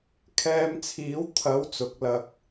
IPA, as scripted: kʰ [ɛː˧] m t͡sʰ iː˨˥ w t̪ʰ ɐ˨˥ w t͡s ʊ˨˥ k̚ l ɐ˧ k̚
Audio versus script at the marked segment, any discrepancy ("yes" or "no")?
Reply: no